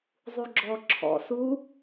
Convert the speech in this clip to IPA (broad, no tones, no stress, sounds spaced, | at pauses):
zˤ u ɡ͡ǁ ɔ ǁʰ ɔ̰ s u